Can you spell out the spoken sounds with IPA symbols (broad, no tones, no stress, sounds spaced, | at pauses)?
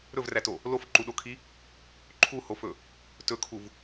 ɾ ɵ v r æ t o | l o f ǃ u ɗ o kʰ i | ǃʰ u h o f ɵ | t ɵ kʰ u v